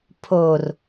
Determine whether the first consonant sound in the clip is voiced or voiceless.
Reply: voiceless